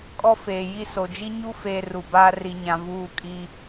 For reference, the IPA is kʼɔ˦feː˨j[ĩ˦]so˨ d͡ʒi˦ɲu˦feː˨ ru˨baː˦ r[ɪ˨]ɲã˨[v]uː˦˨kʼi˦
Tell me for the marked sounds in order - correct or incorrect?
incorrect: i˦, incorrect: i˨, correct

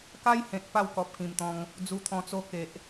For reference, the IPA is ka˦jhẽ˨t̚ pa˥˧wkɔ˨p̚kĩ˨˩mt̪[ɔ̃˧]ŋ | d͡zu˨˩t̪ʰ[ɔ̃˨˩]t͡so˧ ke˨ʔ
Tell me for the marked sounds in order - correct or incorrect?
correct, correct

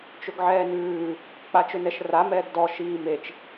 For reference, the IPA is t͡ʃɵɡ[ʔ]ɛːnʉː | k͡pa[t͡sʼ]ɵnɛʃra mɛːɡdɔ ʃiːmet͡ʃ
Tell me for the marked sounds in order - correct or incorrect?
incorrect: ʕ, incorrect: t͡ʃ

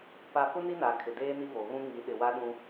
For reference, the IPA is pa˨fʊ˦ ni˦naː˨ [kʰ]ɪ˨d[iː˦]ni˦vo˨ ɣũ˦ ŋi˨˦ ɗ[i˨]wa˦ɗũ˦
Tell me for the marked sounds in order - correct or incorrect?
correct, incorrect: eː˦, incorrect: ɪ˨

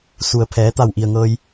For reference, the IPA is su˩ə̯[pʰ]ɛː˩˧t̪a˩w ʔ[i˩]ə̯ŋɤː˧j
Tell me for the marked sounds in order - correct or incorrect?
correct, correct

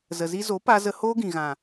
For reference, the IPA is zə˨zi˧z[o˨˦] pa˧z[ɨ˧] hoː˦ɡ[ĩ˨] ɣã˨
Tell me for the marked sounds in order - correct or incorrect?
correct, incorrect: ə˧, correct

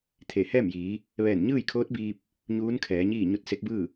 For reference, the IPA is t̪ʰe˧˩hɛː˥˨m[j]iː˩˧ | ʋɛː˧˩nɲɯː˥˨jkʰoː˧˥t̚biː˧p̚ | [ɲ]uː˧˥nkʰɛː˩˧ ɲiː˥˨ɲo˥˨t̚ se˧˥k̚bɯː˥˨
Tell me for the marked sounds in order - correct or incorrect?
correct, correct

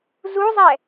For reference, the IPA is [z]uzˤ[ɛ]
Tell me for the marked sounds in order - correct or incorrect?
correct, correct

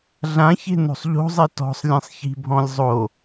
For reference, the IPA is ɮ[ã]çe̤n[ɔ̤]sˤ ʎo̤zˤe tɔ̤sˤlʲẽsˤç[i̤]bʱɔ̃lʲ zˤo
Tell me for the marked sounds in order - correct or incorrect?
correct, incorrect: o̤, correct

